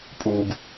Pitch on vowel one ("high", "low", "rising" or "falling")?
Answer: low